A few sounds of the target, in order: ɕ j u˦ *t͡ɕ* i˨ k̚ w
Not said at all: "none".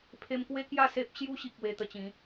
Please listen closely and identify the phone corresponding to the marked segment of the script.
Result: ɕ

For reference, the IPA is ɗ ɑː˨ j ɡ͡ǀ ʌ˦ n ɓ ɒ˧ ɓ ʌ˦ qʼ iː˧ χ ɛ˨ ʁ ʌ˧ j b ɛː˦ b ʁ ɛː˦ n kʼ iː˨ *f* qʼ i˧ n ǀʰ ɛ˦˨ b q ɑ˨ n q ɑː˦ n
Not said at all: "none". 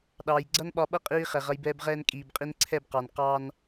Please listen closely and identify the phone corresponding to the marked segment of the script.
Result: b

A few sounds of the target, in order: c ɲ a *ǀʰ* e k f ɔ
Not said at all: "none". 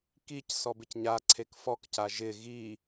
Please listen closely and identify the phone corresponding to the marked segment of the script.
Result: ǀʰ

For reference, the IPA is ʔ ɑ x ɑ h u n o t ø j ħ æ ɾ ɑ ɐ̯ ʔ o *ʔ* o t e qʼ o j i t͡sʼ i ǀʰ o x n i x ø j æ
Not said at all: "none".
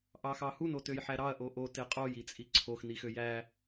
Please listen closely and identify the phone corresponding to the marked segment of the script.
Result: ʔ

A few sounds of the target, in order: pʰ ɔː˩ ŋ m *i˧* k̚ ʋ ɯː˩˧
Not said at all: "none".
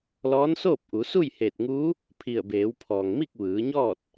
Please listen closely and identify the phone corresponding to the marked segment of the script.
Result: i˥˨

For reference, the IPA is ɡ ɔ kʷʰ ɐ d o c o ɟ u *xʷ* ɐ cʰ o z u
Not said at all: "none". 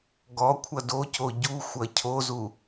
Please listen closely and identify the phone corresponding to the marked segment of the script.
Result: xʷ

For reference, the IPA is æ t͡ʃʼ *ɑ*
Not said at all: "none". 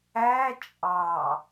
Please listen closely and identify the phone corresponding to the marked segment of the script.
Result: ɑ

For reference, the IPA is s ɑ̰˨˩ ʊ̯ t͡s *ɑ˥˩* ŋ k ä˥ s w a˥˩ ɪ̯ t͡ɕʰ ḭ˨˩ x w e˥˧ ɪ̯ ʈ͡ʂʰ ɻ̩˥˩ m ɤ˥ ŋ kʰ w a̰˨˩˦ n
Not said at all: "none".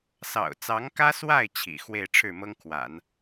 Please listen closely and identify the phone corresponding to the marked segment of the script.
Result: ɑ˧˥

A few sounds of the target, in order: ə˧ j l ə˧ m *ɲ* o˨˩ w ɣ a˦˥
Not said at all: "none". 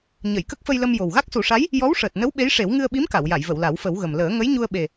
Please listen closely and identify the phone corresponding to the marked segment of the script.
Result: j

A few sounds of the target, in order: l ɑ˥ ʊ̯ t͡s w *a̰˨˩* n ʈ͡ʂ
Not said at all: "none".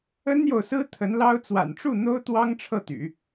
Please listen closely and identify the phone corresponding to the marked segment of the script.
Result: a̰˨˩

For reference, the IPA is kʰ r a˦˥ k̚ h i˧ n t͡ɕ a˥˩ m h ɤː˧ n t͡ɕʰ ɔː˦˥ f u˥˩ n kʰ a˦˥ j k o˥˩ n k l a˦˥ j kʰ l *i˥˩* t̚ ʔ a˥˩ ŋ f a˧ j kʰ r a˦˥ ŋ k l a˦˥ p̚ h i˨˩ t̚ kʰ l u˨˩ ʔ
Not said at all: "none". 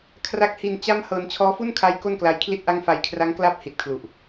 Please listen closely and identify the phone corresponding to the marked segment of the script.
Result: i˥˩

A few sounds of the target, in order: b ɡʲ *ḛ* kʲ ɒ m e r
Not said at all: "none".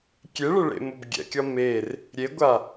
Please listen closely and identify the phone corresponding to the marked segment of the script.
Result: ɛ̰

